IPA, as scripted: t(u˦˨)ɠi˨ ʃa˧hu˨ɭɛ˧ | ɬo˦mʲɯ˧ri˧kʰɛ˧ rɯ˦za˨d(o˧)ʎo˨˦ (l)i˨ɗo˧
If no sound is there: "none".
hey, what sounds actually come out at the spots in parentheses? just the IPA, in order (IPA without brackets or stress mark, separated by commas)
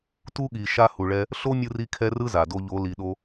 u˦, o˧, l